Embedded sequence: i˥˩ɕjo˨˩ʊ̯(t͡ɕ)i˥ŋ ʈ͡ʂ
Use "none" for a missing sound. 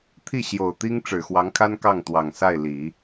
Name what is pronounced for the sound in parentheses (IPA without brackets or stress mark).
t̪